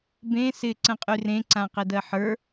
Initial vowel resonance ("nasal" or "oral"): nasal